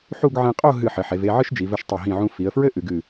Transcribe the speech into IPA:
ħ u˥˧ ɡ ʕ ẽ˧ qʼ o˥˧ ɦ ɨ˧˩ ħ ɘ˩˧ ħ e˩˧ v e˥˧ ʕ ɨ˥ ʃ d͡ʒ i˩˧ v ɘ˧ ʃ tˤ ɐ˧˩ ɦ ĩ˧˩ ʕ ũ˧ f i˩˧ ə̯ f ɹ ɘ˥ ʔ ɨ˩˧ ɡ ɨ˧˩

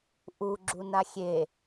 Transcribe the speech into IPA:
ʔ u ɡ͡ǁ u n a xʲ e

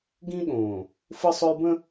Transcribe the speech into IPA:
ɡ ĩ˦ ɠ õ˨ | f ɯ˦ sˤ ɵ˦ j b ə̃˦

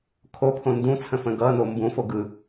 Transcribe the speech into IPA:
kʰ o pʰ õ n d ũ t͡sʰ ə̃ f ə̃ ɡ ʌ n o m b ũ f o ɡ ɯ

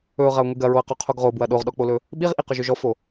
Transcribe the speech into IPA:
ɵ ʊ̯ ʁ ɐ ʊ̯ ŋʷ i ɡ ɐ ɹ o ə̯ q o qʰ o ɡ ʁ o b w ɐ ɗ o ʁ ɗ ɔ k͡p o l ɵ | ɓ i ʁ ʔ i q ɵ ʒ ɵ ʒ ɔ f o

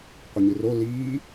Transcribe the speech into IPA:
qʷ ə ɲ ɨ r o l iː

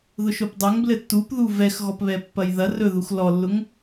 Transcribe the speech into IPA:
ð ʊ ʃ o p dˤ ɵ ŋ b l ɘ tː u p ð u v ɛ x ɣ ɔ p β ɛ pː ɐ j ð ɐ r ɵ ð u x l ɔ lː ʊ ŋ

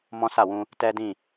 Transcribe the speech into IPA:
m ɔ̃˦ s a˦˨ w ũ˧ | t ɛ˦ d ĩ˦˨

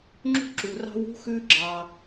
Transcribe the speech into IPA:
ŋ͡ǁ ṳ˥ ǁ u˩ r ɑ̤˥ w ṳ˥ x ʉ˥ ɡ͡ǁ ɑ˩

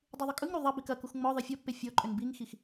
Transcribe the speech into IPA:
dˤ u ðˤ ʏ kʼ ɯ ŋ ɾ u ðˤ ɐ b i k ɐ k u x ŋ͡m ɔ ðˤ ɨ fʲ ɔ pː e fʲ ɔ ǃʼ ʏ n b i ŋ x i x

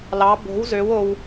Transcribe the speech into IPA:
l ɑ b o̤ w z ø w o w

